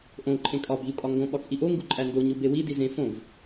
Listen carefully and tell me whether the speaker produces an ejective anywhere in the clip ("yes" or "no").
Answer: yes